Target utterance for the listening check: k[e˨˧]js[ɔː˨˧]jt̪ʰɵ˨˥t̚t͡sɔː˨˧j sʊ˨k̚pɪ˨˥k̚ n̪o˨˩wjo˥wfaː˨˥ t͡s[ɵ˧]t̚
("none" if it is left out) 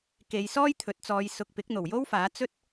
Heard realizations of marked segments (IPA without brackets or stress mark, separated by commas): e˨˧, ɔː˥, ɵ˥